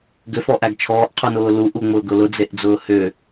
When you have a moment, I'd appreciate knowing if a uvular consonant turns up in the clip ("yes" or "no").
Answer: yes